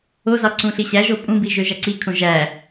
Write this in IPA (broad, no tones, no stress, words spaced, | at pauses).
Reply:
ozɑ ǀũɬiɕæʒo pʼũbi ʒøʒæǀikʰõ ʒæ